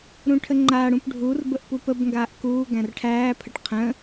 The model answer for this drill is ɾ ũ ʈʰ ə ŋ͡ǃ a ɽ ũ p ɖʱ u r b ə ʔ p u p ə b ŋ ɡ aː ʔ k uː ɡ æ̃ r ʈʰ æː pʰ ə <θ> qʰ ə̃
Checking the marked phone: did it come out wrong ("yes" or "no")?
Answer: yes